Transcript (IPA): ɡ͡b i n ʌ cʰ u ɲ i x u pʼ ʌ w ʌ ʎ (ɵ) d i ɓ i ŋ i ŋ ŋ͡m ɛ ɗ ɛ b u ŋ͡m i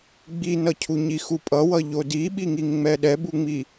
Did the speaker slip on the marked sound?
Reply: yes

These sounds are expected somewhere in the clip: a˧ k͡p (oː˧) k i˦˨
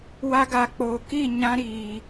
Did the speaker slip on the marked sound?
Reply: no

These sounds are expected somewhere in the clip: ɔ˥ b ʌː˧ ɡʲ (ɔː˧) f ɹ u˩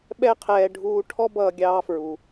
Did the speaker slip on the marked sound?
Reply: yes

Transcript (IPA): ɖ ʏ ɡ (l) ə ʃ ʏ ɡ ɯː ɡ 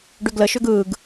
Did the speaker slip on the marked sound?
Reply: no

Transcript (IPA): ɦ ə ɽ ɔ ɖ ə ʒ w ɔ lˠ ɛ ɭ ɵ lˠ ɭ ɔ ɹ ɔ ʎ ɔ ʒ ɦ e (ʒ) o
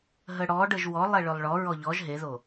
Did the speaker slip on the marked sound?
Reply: yes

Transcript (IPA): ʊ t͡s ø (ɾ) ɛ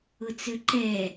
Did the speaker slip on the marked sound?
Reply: yes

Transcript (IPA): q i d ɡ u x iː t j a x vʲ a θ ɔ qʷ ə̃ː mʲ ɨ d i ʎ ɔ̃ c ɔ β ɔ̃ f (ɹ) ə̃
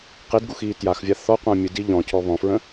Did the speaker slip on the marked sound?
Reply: no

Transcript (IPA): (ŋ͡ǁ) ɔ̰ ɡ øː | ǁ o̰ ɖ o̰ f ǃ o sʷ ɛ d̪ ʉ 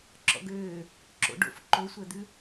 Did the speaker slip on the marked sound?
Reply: yes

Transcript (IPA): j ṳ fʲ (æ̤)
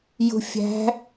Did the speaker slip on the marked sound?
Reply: no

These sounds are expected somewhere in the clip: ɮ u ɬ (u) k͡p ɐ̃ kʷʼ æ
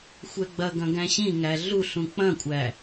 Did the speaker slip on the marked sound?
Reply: yes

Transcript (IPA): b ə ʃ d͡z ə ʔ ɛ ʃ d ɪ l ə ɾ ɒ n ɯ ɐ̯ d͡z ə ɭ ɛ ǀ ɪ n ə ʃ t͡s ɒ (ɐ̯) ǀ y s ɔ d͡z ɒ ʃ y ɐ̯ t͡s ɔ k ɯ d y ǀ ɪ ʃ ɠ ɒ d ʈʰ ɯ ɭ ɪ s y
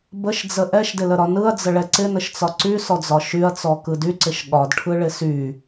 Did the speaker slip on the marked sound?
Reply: yes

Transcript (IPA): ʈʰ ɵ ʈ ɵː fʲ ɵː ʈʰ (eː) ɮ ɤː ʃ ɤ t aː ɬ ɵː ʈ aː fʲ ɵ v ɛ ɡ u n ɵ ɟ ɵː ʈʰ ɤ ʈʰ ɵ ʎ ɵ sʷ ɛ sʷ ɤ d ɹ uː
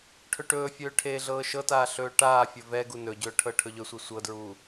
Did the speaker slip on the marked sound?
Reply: no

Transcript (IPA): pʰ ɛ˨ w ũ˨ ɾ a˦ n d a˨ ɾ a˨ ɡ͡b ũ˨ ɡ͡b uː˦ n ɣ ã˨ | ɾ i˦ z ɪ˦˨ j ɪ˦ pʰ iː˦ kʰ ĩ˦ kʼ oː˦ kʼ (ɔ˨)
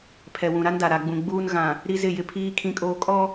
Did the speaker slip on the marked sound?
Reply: yes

